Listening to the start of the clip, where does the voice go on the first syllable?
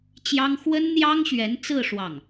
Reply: high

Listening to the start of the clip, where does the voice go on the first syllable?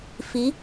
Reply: rising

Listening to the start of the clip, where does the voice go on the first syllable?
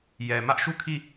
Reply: low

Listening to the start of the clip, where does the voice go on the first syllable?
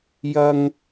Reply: high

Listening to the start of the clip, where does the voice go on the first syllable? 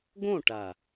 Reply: falling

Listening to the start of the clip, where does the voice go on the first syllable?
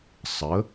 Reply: rising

